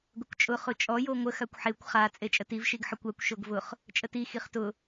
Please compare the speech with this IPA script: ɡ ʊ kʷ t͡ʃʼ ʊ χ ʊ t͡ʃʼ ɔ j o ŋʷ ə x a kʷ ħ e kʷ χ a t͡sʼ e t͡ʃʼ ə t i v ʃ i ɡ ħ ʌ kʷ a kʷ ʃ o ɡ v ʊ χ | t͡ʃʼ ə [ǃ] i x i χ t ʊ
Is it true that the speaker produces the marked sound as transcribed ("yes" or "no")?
no